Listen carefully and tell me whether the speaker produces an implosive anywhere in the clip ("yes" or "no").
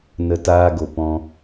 no